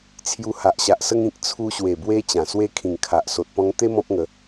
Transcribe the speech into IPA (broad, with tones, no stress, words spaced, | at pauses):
t͡sʰju˧ha˨ʔɕa˨ʔsə˦ŋ ĩ˨k̚t͡sʰu˧ɕwe˨˩ bwe˧ t͡ɕã˨˩swe˦ kʰĩ˨˩ŋkʰa˨ʔ so˨t̚pɔ̃˧ŋt̪e˦ mɔ̃˦p̚ŋə˨˦